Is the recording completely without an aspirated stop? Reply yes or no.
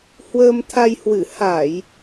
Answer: no